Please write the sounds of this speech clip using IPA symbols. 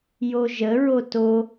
joʒəɹo to

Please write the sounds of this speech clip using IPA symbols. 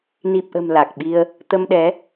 ni˨˩p̚ʔə̤˨˩m la˨˩k̚ɓi˧ə̯ | t̪ə˧mɗɛ˨˦

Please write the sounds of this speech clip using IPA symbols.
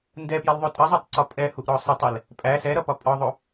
ndɛpjɐlðˤo tʼɐzˤʌtˤǀɒ pʼɛhuʔɾɔ sˤʌtˤɛl | pʼæ sɛɾʌpɒ pʼɒðˤo

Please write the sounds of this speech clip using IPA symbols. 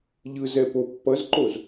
ʎɯzɛ popːʌzǃoz

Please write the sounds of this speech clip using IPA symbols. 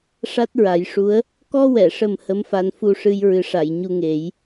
ʂa˦˥t̚ɹa˨˩˦jʂu˧˥ə̯ | kɔ˧wɛ˨˩˨ʂə˨˩m hə˧˥mfa˧n fu˧ʂɨ˧j ɹɨ˨˩˦ʂa˨˩˨j ɲu˧ŋe˨˩˦j

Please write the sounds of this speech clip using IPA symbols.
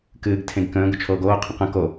kɨːɡ tʰẽɡkə̃ː ɡʊt͡ʃʰoːɡoː qʰə̃qə̃ ko

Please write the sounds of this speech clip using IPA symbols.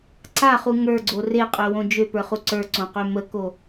ǀaχu ŋə˞ɡ͡ǀo reqʼøwõ d͡ʒøpə˞χu ǀə˞ǀõqø məko

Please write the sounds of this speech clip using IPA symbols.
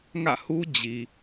ŋä̰˦˨hu˦ d͡ʑi˨

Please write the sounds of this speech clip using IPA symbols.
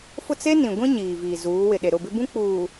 fʊ˦˨t͡se˦ nĩ˨ɡʷĩ˦ ɲiː˨viː˨ zuː˨˦wɪ˨ ɗe˨ɾʊ˦˨bɪ˦ bũ˦k͡puː˨

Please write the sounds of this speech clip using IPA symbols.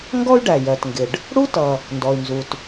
ŋɡɔ˥y̯ ɖæ˩jɜ˩tŋɡɪ˩ɖ | ɽu˥tʌ˩ | ndɔ˩y̯nzu˩t

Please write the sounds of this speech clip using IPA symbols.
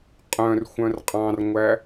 qʼœ̃r xʷœ̃rqʼɑ̃rŋʷæ

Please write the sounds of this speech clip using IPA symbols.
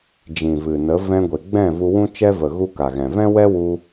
d͡ʒĩ˨vɨ˨nə˨˦ vɛ̃˧ɡʷe˨ ɡ͡bɛ̃˦˨vu˧ wũ˦t͡ʃɛ˦və˨ ɣu˦ka˨ɣɛ̃˨ vɛ̃˦wɛ˦wu˧

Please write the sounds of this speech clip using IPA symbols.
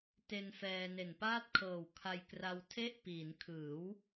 te˧n fɛː˧ne˨˩npaː˥˩t̚ kʰɤː˨˩wkʰa˧j kra˧wtʰe˥˩ʔpiː˩˦n kʰɯː˩˦w

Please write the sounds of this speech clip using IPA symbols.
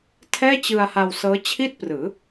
tʰɛː˥˩t͡ɕɯ˧a̯ha˧w sɤː˦˥ t͡ɕʰi˥˩t̚prɯː˩˦

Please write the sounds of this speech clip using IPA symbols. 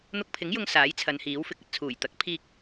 n̪ʊ˧k̚pʰɪ˨˥ŋjʊ˧ŋ saː˨˥jt͡sʰɐ˨˧nhiː˨˥w fɪ˨˥k̚ɐ˨t̚t͡sʰuː˨˩j t̪ɐ˨˥k̚pʰiː˧k̚

